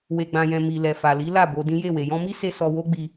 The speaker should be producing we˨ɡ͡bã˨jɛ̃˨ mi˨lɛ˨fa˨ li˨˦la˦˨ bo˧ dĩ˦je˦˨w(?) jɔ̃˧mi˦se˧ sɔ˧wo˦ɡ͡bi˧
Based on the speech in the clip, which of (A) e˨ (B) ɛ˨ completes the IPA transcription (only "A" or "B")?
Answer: A